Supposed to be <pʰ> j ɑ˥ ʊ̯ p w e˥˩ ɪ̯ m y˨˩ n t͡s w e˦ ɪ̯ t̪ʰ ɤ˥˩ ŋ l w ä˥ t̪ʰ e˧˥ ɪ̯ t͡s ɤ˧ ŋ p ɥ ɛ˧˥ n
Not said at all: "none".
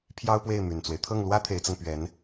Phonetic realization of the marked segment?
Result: pʰ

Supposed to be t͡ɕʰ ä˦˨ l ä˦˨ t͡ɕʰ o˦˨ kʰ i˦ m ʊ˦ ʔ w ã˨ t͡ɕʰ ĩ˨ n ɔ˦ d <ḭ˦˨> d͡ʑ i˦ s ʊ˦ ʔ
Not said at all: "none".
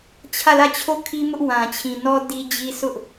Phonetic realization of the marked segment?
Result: i˦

